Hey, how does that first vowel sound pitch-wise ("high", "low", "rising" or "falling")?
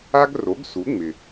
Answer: high